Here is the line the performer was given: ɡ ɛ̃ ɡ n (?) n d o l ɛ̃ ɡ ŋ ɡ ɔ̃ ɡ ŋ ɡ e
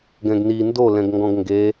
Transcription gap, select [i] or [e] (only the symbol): i